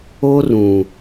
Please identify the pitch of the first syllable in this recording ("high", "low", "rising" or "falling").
high